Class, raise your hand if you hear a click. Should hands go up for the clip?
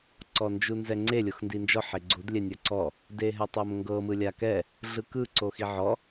yes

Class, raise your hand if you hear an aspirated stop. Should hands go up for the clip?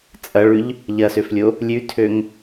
yes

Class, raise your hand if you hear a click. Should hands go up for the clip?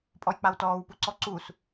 yes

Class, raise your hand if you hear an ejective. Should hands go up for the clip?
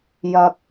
no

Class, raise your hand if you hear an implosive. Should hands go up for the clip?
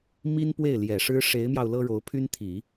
no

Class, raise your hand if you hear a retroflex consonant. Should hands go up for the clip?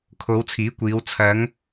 no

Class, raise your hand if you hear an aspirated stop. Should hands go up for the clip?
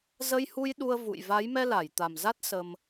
no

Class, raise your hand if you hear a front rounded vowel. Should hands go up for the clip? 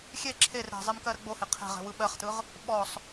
no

